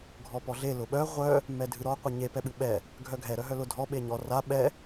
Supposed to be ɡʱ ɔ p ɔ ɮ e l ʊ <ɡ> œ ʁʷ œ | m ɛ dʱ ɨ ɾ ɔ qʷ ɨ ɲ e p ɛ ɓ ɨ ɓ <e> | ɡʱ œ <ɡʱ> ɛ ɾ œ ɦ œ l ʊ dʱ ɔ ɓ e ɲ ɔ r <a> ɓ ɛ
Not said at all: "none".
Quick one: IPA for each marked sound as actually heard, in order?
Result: ɓ, ɛ, ɡʱ, a

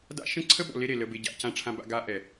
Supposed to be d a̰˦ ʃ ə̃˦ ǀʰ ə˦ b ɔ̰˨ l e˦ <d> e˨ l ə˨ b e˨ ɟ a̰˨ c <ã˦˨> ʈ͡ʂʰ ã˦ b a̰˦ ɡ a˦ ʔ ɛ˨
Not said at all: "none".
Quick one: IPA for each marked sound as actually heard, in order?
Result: ɾ, ã˦˨

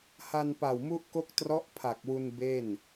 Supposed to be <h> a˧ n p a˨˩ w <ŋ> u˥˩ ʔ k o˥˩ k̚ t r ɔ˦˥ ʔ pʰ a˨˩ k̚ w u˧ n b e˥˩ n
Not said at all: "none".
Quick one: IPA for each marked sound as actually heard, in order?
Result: h, m

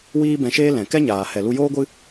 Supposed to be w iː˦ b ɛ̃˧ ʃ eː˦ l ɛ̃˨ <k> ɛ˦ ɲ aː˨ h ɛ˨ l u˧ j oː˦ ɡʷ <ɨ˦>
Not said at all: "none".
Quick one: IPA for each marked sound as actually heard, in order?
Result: k, ɨ˦

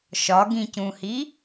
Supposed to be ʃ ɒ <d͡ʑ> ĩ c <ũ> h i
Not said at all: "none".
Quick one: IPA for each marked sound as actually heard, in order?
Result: ɡ, ũ

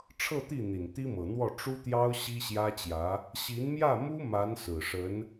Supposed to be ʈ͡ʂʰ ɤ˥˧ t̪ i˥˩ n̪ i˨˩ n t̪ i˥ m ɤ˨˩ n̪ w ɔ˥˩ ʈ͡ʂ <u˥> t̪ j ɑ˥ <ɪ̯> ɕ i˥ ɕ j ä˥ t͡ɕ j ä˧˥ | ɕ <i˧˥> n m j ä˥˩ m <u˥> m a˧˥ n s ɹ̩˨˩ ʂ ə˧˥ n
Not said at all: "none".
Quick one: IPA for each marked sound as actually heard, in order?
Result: u˥, ʊ̯, i˧˥, u˥

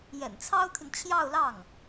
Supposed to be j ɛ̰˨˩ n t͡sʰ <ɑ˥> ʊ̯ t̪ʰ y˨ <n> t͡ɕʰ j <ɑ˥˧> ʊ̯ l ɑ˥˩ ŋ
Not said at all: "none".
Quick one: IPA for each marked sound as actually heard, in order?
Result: ɑ˥, n, ɑ˥˧

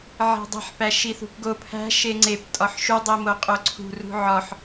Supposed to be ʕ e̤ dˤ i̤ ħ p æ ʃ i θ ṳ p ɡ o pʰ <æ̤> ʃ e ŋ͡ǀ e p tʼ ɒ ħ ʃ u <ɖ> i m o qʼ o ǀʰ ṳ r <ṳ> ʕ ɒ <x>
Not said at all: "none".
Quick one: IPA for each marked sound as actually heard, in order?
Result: æ̤, dˤ, ṳ, ħ

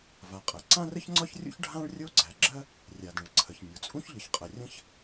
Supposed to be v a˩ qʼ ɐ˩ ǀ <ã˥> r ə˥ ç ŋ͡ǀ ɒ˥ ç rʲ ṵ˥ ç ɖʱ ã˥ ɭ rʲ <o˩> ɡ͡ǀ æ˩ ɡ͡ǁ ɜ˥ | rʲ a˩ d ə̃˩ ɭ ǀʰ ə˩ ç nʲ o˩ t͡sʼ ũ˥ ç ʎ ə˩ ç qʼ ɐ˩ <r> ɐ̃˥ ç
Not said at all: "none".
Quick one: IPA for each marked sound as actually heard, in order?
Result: ã˥, o˥, rʲ

